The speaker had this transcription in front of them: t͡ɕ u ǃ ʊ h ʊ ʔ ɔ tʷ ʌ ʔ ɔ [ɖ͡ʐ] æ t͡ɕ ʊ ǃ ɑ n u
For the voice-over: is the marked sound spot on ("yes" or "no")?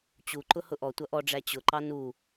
yes